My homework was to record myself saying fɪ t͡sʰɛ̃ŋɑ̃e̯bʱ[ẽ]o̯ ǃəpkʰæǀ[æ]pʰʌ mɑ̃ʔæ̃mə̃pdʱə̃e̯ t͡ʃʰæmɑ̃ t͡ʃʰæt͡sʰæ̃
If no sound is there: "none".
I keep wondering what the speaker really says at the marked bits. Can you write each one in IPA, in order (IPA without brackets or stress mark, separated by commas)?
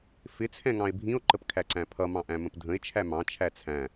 ĩ, æ̃